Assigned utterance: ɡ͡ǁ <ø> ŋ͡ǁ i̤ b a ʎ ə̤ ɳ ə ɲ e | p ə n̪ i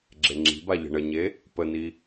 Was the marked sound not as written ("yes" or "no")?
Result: yes